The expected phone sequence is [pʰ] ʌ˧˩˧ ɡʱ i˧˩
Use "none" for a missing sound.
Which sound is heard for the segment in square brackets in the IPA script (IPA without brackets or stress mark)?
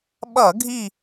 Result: ɓ